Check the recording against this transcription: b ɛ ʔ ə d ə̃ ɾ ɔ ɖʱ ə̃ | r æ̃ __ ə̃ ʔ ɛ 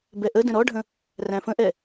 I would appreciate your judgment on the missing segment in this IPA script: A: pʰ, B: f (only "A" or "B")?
B